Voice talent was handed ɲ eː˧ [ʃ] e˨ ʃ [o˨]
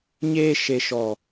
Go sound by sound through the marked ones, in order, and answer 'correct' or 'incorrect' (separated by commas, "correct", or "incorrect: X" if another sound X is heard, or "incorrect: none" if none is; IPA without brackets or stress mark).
correct, incorrect: ɔ˨